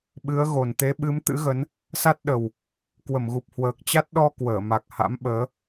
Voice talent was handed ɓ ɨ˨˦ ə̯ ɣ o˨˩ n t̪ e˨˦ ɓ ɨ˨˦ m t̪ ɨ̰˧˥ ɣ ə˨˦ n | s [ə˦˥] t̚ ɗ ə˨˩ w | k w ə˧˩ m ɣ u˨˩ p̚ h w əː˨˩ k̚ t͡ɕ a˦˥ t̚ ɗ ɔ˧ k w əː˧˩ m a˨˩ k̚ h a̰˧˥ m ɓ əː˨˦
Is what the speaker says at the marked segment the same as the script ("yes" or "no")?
no